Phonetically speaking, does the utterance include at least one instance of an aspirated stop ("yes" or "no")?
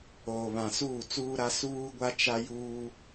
no